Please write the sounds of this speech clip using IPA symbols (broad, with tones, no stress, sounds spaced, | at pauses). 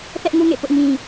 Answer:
θ ɛ˦ ʔ ŋ u˦ ŋ ḛ˦˨ p ʊ˦ ʔ ŋ ĩ˦